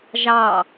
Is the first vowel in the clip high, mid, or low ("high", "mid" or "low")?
low